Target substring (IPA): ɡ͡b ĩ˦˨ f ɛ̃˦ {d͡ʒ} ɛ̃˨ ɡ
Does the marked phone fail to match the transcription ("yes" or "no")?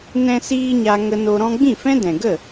yes